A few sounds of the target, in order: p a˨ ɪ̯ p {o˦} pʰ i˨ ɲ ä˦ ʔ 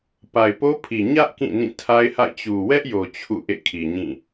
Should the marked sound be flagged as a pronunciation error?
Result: no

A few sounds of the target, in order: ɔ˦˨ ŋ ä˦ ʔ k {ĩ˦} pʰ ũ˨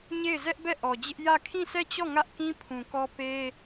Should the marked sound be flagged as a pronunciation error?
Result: no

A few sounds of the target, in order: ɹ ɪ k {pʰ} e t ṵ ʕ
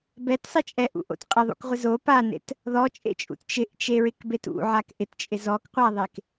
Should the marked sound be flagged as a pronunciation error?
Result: yes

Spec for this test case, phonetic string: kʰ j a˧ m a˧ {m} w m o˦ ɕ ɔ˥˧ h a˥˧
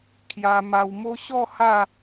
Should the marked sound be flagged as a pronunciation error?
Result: yes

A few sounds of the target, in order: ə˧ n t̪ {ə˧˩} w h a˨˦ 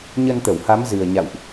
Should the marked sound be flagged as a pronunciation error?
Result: no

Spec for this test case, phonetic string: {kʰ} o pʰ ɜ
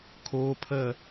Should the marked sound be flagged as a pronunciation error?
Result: no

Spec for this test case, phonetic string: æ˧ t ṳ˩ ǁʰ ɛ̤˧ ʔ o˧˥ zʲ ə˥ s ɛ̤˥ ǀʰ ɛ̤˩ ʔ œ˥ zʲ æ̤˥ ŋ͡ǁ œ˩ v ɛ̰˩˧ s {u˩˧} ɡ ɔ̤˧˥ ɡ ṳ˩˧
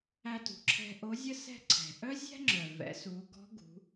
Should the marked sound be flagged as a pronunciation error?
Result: no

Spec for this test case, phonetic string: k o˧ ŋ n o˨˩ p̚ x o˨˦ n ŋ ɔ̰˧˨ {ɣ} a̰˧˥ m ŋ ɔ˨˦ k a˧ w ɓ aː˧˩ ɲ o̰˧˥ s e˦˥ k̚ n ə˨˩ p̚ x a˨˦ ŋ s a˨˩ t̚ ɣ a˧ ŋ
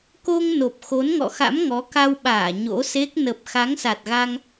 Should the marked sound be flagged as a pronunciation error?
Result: yes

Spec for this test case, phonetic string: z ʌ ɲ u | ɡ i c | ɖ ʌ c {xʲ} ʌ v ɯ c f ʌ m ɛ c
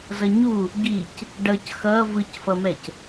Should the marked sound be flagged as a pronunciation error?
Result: yes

